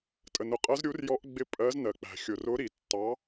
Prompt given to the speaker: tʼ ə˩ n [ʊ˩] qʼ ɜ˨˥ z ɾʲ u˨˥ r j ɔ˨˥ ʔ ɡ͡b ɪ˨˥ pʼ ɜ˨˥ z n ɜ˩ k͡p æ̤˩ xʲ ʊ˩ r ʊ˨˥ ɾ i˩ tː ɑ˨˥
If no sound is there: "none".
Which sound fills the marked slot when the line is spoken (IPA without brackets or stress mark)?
ʊ˩